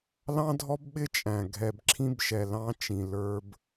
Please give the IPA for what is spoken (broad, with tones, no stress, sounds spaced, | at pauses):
l ɑ̃˦ dʱ ɔ˦ b ɓ ɪ˦ t͡ʃʼ æ̃˨ ɡʱ ɛ˨ b ǁʰ ĩ˦ b ʃ ɛ˨ l ɑ̃˦ t͡ʃ ĩ˨ l ə˞˦ b